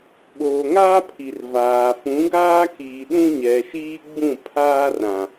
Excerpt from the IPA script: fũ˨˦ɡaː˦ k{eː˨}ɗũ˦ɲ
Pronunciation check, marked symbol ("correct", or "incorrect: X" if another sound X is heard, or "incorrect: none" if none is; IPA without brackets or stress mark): incorrect: iː˨